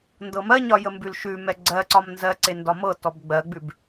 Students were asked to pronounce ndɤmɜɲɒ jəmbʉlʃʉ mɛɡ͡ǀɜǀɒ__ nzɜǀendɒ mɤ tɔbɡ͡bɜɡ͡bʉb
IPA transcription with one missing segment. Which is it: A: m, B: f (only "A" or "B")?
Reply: A